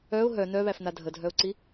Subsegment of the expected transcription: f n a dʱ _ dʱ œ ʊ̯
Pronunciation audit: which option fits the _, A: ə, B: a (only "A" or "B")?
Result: A